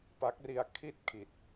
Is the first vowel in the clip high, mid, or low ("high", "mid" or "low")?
low